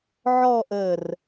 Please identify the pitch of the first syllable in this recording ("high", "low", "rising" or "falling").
falling